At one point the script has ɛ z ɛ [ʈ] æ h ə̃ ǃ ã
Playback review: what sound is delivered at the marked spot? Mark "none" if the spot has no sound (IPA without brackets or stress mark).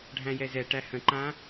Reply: ʈ